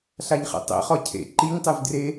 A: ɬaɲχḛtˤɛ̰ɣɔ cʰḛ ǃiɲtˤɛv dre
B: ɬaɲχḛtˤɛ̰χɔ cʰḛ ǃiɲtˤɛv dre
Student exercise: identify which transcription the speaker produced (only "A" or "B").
B